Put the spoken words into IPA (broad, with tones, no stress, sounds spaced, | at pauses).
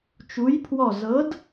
t͡ʃ u˧˥ j pʰ w ɔ˥˧ z ɤ˧˥ d